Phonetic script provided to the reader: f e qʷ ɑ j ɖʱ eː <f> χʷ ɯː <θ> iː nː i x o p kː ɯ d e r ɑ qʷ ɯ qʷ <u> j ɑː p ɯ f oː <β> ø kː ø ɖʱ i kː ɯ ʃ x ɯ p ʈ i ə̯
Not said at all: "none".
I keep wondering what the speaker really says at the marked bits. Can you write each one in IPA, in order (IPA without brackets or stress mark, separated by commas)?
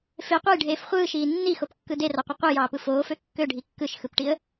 f, ʃ, ɯ, f